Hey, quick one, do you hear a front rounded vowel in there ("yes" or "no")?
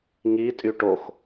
yes